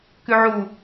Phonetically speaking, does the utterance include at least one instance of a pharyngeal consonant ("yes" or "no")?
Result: yes